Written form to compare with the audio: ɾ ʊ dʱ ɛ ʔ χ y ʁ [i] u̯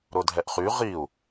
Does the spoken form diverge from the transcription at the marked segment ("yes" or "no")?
no